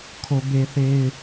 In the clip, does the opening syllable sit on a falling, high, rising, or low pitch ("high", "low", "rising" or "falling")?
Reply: low